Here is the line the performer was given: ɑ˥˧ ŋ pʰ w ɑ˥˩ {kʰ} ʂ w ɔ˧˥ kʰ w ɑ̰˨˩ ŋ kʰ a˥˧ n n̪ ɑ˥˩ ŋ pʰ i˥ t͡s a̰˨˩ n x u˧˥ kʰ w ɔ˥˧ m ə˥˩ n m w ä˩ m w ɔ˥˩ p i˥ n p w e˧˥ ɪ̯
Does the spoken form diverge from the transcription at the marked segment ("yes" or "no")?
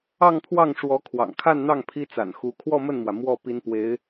yes